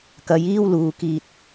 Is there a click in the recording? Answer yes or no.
no